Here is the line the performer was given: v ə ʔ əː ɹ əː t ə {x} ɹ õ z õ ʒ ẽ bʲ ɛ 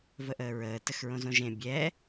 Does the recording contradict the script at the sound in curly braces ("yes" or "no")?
no